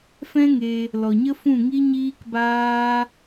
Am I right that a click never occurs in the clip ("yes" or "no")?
yes